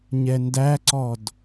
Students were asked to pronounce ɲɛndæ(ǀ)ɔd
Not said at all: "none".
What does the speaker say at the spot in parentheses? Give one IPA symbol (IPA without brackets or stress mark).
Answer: ǀ